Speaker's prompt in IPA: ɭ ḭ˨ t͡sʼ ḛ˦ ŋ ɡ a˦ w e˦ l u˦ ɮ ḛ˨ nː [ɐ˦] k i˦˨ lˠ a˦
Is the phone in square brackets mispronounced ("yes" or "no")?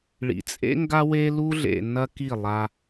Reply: no